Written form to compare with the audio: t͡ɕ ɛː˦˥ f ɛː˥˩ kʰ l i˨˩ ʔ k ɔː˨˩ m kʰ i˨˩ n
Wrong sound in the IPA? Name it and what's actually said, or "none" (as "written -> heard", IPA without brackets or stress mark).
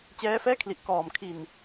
none